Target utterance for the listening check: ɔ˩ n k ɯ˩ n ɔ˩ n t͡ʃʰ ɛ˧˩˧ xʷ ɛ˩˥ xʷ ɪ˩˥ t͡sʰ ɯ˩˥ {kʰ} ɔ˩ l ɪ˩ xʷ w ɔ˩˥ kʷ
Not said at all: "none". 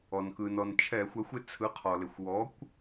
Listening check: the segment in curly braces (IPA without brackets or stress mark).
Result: qʰ